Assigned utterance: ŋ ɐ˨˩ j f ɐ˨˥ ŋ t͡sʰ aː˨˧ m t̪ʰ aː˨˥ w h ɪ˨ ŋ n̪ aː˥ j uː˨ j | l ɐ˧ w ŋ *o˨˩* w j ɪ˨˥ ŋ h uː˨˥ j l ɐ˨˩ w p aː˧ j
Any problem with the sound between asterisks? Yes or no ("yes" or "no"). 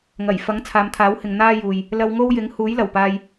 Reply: yes